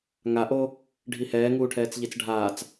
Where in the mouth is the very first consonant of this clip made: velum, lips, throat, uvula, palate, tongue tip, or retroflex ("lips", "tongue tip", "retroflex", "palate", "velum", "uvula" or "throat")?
velum